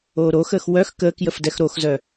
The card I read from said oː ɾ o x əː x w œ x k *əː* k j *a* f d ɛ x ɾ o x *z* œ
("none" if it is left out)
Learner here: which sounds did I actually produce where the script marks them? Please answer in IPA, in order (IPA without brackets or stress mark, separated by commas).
əː, ə, z